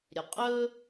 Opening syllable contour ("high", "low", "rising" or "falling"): low